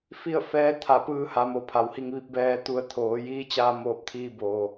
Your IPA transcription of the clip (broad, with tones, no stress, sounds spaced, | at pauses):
f i˥˨ ə̯ f ɛː˧˥ t̪ʰ a˧˩ p ɯː˧ h a˩˧ m o˩ pʰ a˩˧ w h i˧ ŋ ʋ i˧ p̚ b ɛː˧ t̪ u˧ ə̯ t̪ʰ oː˩˧ j iː˧˥ t͡ɕ aː˧ m oː˧˩ p̚ t̪ʰ iː˧ b oː˩